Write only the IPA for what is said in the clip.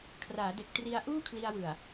kʰ r aː˩˦ d e˨˩ k̚ t r i˧ a̯ ʔ uː˥˩ kʰ l i˧ a̯ w ɯ˨˩ a̯

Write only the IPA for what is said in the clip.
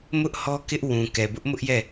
m ʊ˦ ʔ h ɔ˦ k ɪ˦ ʔ w ũ˨ k ɛ˨ b ʊ˦ ʔ m ʊ˦ ʔ j ɛ˦˨

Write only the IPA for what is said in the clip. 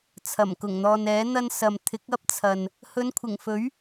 t͡sʰ ɐ˨˩ m k ʊ˨˩ ŋ n̪ ɔː˨ n ɛː˨˥ n̪ ɐ˧ n s ɐ˨ m t̪ʰ ɪ˨˥ k̚ ɐ˥ p̚ t͡sʰ ɐ˨ n | h ɵ˨˧ n kʷʰ ɪ˨˩ ŋ f ɵ˨˥ ɥ

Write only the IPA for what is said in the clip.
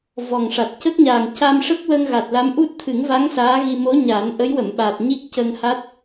v ɔ˨˩ ŋ ʂ a˨˩ t̚ c ə˦˥ k̚ ɲ aː˨˩ ŋ c a˧ m ʂ ə˦˥ k̚ w ə˧ ŋ ɣ a˨˩ t̚ l a˧˥ m ʔ u˦˥ t̚ t̪ʰ ɨ˨˩˦ ŋ v a˧˥ ŋ s aː˧˥ ɣ i˧ m o˧˥ ɲ aː˨˩˦ n ʔ ə˧˥ j w ə˨˩˨ m ɓ a˨˩ t̚ ɲ i˦˥ k̚ c ə˧ ŋ h a˦˥ t̚

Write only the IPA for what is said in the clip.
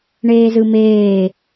ɳ eː z ɯ m eː

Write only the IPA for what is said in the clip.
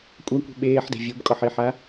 kʷʼ a kʷ i̤ ɓ eː ħ d e̤ vʲ u b kʼ ɔ ħ i ħ a

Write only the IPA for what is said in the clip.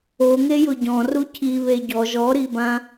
o ŋ e j ʊ ɟ ɔ̃ r u cʰ i β e ɟ ɔ ʒ ɔ ɾ i b ã

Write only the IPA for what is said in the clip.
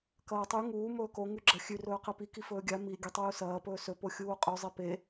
k ɐː tˤ ʉ ŋ uː m ɵː k o ŋ ʉ ɡ͡ǁ ɐ xʲ ʉ r ɵː q e p i k i f ɵː ɡʲ a m i ɡʲ ɐ tˤ uː s ɐː p ɵː s ɵ p o xʲ uː qʼ ʉ zˤ i p e

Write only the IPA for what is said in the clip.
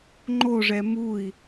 ŋ͡ǃ o ʐ ɛ m u i̯

